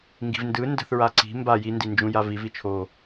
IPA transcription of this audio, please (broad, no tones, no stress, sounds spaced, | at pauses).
ŋ ɡ i̤ v n d ɯ n d ə̤ θ ɹ a ǀ i̤ m b a j i n d i n d͡ʒ ũ j a v i v i t͡ʃʰ o